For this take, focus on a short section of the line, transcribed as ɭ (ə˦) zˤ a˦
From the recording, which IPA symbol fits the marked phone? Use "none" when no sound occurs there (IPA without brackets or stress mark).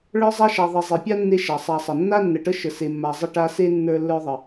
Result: ə˞˦